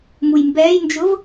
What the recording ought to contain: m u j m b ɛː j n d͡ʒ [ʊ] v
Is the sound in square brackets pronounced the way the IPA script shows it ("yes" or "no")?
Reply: yes